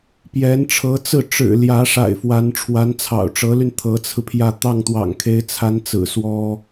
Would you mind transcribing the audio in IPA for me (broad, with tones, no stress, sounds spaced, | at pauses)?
p j ɛ˧˥ n ʈ͡ʂʰ ɤ˧˥ t͡s ɹ̩˥˩ ʈ͡ʂ ɻ̩˨˩ l j ä˧˥ ʂ a̰˨˩ ɪ̯ f w a˧˥ n ʈ͡ʂʰ w a˧˥ n t͡sʰ ɑ̰˨˩ ʊ̯ ʈ͡ʂ ɤ˧˥ l y˧ n t̪ʰ ɤ˧˥ t͡sʰ ɹ̩˧ pʰ j ä˥˧ t̪ ɑ˥˩ ŋ t̪ w ɑ̰˨˩ ŋ kʰ e˧˥ ɪ̯ t͡sʰ a˧˥ n t͡s ɹ̩˨˩ s w ɔ˥